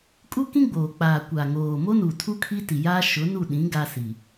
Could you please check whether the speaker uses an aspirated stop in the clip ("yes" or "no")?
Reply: yes